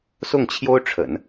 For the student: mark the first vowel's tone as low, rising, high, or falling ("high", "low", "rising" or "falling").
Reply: falling